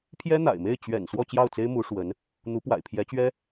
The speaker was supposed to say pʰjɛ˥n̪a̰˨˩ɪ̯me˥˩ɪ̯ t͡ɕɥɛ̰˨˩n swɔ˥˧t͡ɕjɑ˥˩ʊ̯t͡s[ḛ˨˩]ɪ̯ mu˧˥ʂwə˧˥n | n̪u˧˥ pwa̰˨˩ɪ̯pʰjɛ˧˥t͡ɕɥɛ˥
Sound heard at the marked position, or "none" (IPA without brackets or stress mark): e˥